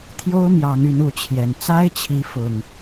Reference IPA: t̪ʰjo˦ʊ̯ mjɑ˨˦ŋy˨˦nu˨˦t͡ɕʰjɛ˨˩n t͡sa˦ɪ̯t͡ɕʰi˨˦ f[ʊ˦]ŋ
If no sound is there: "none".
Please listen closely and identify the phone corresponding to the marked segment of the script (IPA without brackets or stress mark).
ʊ˨˩